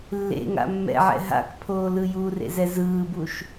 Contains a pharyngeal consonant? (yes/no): yes